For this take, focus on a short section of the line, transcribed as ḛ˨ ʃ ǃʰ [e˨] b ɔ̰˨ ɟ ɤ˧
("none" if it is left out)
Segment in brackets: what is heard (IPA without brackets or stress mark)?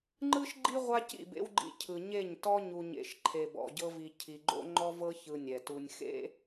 e˨